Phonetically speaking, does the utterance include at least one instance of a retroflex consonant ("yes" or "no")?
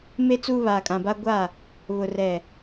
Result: no